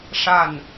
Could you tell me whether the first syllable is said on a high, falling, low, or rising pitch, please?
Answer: falling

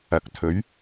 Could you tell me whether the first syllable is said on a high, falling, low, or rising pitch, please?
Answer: rising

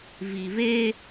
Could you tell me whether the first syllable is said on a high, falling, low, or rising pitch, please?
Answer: low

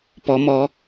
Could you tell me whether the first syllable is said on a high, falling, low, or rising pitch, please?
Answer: rising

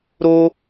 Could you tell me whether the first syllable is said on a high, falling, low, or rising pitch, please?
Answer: high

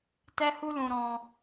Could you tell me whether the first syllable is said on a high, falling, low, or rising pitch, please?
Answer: high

